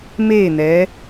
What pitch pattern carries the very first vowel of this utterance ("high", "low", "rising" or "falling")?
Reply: falling